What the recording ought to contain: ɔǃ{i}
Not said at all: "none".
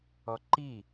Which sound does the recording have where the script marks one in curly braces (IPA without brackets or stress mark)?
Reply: i